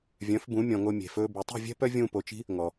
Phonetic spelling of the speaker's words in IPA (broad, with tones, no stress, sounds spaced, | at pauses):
vʲ œ̃˨˦ f b ũ˨˦ mʲ ɔ̃˨ ŋ o˧ mʲ e̤˨ f ɵː˧ b y˨ tˤ i̤˦˨ vʲ ɛ̤˦ p œ˦ vʲ ũː˧ p o˨ t͡ʃ i̤˦ | ŋ ɔ˨